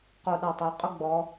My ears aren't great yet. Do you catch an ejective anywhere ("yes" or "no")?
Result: yes